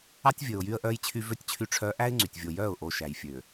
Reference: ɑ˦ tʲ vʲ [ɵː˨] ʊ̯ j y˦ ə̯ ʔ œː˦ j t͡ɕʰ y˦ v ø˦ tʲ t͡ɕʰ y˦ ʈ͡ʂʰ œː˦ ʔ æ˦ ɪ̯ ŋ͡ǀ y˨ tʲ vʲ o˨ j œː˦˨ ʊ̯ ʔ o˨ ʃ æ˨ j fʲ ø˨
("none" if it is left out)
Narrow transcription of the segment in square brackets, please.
ɵː˨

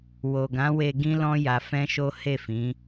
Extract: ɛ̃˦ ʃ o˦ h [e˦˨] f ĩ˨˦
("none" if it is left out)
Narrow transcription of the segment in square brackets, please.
e˦˨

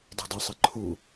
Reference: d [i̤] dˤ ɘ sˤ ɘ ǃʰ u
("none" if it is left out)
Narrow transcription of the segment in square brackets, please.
i̤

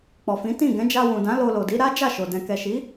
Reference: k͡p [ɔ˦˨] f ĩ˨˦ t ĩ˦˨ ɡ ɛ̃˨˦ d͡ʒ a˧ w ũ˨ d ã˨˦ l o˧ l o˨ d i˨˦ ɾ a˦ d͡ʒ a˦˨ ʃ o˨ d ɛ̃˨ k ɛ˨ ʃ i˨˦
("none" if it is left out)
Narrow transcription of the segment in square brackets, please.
ɔ˨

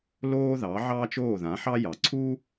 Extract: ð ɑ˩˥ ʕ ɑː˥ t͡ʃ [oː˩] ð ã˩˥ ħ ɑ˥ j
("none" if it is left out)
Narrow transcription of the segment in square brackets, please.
oː˥˩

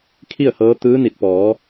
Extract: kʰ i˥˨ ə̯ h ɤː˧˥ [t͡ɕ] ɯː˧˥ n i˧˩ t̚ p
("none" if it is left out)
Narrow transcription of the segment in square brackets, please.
t̪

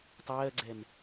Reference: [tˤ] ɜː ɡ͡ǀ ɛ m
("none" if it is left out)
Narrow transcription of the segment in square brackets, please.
tˤ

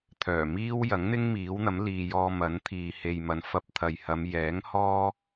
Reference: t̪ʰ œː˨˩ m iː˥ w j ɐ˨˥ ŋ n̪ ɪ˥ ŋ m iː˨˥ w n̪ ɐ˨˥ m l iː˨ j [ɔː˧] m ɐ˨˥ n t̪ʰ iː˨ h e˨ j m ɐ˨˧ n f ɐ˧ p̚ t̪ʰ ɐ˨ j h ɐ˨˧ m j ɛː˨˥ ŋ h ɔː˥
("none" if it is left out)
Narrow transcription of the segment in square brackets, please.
ɔː˧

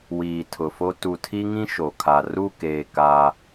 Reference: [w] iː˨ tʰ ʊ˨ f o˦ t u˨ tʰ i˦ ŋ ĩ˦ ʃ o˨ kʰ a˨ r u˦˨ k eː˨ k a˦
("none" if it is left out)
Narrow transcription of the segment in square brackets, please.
w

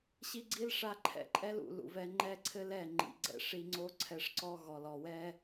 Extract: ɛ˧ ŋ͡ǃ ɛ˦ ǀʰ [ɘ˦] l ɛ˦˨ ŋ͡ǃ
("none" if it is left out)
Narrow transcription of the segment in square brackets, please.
ɘ˦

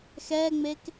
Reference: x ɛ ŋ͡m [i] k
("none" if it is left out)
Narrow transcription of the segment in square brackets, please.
e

